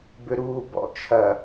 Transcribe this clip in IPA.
bʏɾuːbɔ̰ t͡ʃʰɐ

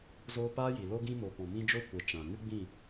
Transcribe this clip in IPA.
zoː˧paː˦ji˨ lo˧ɡĩ˧mo˨ pɔ̃˨ mĩ˧d͡ʒo˦˨kʷɛ˨ t͡ʃã˨ ŋɨ˦ɡ͡bĩ˦˨

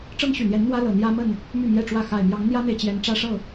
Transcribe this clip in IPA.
ʈ͡ʂɤ˦ŋɕy˨˩n̪jɛ˨˦n n̪wä˦lɤ˨˩ n̪jä˦mə˥˨n | my˥˨mjɛ˥˨ʈ͡ʂwä˥˨ xa˨˩ɪ̯mjɑ˨˦ŋn̪jä˦n̪e˨ɪ̯ t͡ɕjɛ˨˦nʈ͡ʂä˦ ʂɤ˥˨

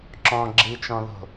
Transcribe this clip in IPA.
ǁɔ̃ ɡ͡ǁit͡ʃɔ̃ðo̤

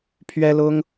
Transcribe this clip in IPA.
pʰɥɛ˦lʊ˦ŋ

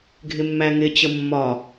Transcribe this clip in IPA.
ɡʱɪmːæŋɪ t͡ɕəmːɒ

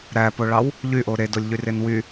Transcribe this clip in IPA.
ɾæpoɭɑw | ʎyʔo ɾedolʲʎyren wy

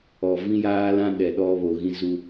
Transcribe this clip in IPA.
ɔ˨ vĩ˦jaː˦lã˦ ɗɛ˨ɗɔ˦βo˨ɣĩ˦ zu˦

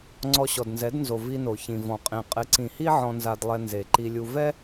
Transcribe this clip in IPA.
ŋ͡ǀɔ˧ɕɔ˨dnzɛ˨˦dnzo˨ vi˧no˨ çĩ˨vɔ̃˨ qʼĩ˨ qʼɪ˨˦ǀĩ˨hi˦ ʕɔ̃˧nza˧dlˠɛ˧ nze˨ ǃi˧lʲu˧ vɛ˦

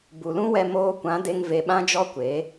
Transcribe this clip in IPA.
bu˨lũ˦wɛ˧ moː˧kʷã˨˦de˧ŋ ve˧ɓã˦d͡ʒɔ˦kʷeː˨˦

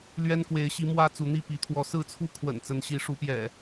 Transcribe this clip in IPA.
lɥɛ˦nkwe˨˦ɪ̯ɕi˨˦ mwä˦ t͡su˨˦n̪i˥˨pi˨˦ t̪ʰwɔ˨˦sɹ̩˥˨t͡sʰu˥˨ kʰwə̰˨˩n t͡sə˨˦nɕi˨˦ ʂu˨˦pjɛ̰˨˩

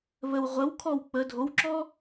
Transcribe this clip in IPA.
βəw ʁʷəw kʰɔw k͡pə dʱowǁɔ

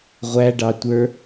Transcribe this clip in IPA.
ʁʷæɖɑ tʷə˞

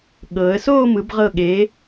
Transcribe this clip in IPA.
ɠɤː˩˧ə̯soː˥˧mɯ˩˧b ʁɤ˧˩ɠe˩˧

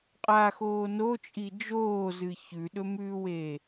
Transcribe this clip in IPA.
qʼaxoː not͡ʃʼi d͡ʒoːzɨ çʉɗɵmʉːweː

